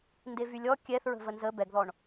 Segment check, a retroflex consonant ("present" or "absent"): present